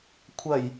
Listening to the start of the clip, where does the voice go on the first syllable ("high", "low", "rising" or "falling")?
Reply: low